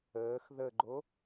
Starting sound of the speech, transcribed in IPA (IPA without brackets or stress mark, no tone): əː